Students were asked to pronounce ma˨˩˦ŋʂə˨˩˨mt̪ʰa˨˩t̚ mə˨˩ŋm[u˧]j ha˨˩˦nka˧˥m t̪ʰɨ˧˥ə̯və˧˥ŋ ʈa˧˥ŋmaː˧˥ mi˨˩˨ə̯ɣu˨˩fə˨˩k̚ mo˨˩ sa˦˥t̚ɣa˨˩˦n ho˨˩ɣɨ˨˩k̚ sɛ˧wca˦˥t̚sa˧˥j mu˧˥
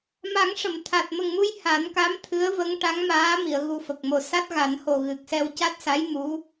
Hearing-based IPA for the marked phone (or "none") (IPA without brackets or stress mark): u˧